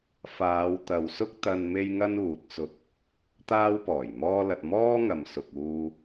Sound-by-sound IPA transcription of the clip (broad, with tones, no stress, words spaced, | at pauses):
faː˨˧wt̪ɐ˨wsʊ˥k̚ t̪ɐ˧n me˥jŋɐ˥nuː˨t̚ t͡sʊ˧k̚ | t̪aː˥wpɔː˨˩jmɔː˥lɐ˧t̚ mɔː˥ŋɐ˨msʊ˨k̚ uː˧